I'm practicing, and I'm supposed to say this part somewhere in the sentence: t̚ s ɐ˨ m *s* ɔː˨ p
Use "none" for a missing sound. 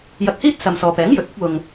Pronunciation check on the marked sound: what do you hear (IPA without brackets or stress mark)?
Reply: s